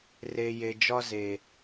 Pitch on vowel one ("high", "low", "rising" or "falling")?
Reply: low